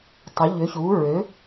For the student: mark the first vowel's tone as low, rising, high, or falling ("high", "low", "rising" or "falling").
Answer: rising